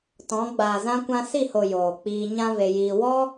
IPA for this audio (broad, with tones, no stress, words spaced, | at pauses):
tɔ̃˨˦ɡ͡baː˨zã˦ kʷã˧si˦˨ho˨ joː˨k͡piː˧ ɲã˦ ve˧jiː˧ wɔ˦